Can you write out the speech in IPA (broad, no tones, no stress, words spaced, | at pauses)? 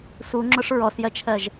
suŋ͡ǁʊʂ ɹɔsjɜt͡ʃʰɜʒ